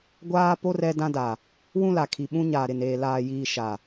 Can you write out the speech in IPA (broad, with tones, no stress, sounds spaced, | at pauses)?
ɡʷ aː˦ p o˦ r ɛ˦ d ã˦ d a˨ | w ũ˦ l a˨ kʰ i˨ ɓ ũ˦ ɲ aː˨ ɾ ɪ˨ n eː˨ l aː˨ j iː˨ ʃ a˨